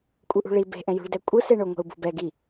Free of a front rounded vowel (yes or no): yes